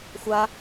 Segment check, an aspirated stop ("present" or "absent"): absent